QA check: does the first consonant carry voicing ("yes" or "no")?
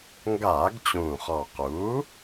yes